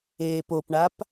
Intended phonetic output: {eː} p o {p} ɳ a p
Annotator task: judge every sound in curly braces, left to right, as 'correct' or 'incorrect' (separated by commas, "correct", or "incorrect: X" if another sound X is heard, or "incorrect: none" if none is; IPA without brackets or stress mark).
correct, correct